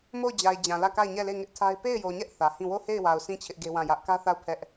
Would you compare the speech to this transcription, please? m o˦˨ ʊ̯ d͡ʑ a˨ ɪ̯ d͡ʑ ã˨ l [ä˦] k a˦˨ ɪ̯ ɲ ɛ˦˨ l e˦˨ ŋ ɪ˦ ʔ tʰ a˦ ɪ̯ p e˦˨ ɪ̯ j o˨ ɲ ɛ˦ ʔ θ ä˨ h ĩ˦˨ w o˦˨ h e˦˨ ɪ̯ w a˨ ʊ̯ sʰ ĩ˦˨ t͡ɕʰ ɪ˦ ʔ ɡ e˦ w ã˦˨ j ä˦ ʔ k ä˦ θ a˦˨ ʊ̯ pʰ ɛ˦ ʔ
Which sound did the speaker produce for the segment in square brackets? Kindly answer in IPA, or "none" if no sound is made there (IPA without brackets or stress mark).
ä˦˨